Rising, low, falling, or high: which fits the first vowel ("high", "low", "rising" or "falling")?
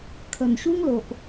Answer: low